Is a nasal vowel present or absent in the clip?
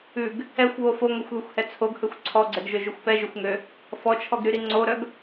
absent